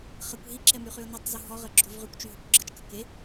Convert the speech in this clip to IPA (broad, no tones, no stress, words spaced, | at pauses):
χəkʷ ɦiǁɛmyχyʊ̯ nitˤzu ɦɔʁəɡ͡ǁov ʁykʷt͡ʃyɦokʷ ɡ͡ǁət͡ʃkə ke